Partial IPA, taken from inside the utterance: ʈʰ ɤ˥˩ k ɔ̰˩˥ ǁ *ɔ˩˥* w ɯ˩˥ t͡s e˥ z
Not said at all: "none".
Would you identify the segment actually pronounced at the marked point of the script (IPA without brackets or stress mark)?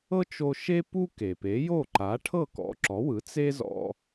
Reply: ɔ˩˥